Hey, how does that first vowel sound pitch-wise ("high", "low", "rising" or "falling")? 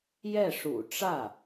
falling